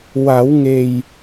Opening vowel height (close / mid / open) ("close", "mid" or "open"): open